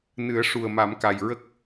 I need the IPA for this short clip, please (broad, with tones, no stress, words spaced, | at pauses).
nɨ˨˩˦ə̯ ʂu˨˩ə̯ma˨˩˦mka˨˩j ɹə˦˥k̚